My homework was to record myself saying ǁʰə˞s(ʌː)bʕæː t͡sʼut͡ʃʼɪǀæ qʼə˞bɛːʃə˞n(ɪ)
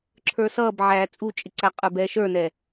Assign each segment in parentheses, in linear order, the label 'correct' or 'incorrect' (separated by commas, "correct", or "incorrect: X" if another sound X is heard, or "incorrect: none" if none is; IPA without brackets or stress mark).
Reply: correct, incorrect: ɛ